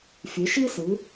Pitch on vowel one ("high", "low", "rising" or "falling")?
rising